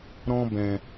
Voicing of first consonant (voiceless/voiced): voiced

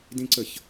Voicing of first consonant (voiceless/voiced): voiced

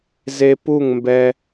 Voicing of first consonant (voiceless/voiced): voiced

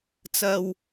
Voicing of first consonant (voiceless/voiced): voiceless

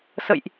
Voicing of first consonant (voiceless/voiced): voiceless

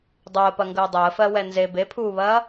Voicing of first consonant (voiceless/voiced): voiced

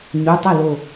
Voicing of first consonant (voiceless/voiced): voiced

